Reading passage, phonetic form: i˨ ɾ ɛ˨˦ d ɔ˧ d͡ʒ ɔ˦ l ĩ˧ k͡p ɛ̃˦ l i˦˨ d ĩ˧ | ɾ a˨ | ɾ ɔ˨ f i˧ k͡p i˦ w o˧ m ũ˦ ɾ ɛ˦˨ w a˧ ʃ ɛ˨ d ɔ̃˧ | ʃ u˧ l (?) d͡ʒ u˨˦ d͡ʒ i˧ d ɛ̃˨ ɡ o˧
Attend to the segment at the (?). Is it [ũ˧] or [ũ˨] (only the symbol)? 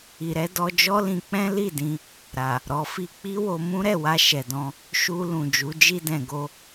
ũ˨